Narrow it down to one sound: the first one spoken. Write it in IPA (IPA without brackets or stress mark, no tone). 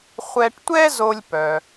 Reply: χʷ